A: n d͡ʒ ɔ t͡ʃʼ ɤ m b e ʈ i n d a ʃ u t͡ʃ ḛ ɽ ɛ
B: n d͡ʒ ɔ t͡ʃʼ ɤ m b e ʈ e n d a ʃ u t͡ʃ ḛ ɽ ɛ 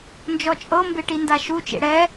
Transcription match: A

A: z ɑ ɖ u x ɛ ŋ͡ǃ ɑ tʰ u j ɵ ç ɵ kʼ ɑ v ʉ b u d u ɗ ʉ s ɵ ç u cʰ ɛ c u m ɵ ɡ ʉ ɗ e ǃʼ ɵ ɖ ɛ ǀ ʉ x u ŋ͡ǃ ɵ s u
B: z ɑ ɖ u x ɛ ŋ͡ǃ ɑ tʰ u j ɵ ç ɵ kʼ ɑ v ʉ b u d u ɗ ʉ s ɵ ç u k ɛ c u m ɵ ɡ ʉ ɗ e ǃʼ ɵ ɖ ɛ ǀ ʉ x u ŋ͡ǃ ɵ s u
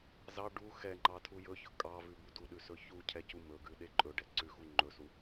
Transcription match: A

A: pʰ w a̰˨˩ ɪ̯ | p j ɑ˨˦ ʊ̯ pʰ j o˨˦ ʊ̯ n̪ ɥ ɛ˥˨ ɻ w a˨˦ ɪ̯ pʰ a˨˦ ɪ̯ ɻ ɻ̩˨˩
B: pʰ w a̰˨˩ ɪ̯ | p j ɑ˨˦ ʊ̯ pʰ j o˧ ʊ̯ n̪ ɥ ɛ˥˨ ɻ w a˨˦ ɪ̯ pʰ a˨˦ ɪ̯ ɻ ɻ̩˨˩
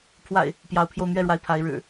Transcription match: B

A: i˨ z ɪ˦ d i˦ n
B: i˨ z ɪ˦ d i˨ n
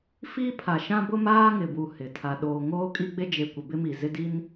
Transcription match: A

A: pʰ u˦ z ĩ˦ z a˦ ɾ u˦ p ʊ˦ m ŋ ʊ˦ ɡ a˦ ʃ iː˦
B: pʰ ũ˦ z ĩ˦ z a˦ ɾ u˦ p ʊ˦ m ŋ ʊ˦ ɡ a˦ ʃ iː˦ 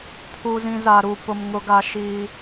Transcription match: A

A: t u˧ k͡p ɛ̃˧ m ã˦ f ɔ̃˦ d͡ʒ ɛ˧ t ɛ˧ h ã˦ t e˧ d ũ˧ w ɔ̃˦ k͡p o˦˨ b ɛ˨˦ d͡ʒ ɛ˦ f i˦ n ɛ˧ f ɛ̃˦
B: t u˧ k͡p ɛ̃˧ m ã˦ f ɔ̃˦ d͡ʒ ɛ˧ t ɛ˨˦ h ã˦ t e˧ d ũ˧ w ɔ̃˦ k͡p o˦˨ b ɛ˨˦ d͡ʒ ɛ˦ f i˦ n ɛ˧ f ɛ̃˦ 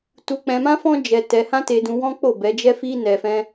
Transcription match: A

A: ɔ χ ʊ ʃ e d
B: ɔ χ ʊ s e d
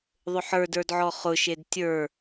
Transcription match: A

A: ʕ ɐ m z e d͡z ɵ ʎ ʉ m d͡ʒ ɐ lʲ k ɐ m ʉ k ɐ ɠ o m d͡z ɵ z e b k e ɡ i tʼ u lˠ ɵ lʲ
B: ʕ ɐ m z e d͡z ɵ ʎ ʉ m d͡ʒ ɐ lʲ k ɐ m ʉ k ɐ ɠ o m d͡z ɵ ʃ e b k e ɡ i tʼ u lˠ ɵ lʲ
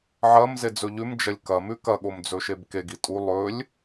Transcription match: B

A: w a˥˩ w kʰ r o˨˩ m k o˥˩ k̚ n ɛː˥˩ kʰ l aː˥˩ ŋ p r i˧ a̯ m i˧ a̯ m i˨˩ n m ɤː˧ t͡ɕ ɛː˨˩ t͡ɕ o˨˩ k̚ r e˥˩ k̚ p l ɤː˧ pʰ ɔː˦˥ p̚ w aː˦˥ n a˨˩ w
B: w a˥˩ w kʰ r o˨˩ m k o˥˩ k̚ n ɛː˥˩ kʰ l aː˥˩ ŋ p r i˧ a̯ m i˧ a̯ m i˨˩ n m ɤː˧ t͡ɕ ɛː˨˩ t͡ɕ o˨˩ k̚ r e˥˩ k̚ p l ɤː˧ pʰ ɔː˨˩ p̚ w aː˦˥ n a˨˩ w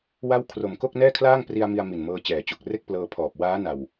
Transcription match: B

